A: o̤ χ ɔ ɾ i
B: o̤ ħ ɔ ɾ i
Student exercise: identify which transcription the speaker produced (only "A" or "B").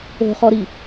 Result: A